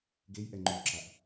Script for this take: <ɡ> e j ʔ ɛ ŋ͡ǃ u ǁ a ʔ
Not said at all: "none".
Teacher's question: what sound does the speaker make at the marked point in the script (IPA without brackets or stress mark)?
ɡ